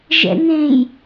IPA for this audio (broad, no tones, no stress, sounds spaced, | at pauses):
ʒ ɛ̰ ŋ ẽ j